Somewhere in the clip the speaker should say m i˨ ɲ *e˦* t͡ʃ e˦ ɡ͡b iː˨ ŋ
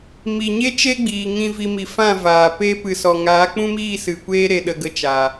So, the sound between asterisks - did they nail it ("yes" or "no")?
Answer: yes